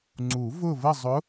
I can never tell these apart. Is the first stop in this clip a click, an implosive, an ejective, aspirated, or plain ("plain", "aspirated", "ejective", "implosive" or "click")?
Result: click